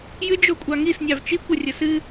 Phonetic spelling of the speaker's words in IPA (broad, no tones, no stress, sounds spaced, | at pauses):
j ɨ d͡ʒ o kʷʼ ɑ ŋ i s nʲ ɑ v t͡ʃ i kʷ ɐ rʲ ɐ s ɨ